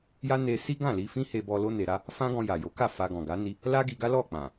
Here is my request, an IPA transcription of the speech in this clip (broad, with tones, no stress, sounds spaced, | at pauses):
j a˦ n e˧ s i˦ ɡ ã˦˨ l i˧ f ĩ˦ h e˧ b ɔ˧ l o˦ n e˧ ɾ a˦ | f ã˦ ɡ ɔ̃˧ j a˨ j o˨˦ k a˦˨ f a˧ ɡ ɔ̃˨ ɡ a˨˦ n i˦ | l a˦ ɡ i˧ ɡ a˦ l ɔ˦˨ k͡p ã˨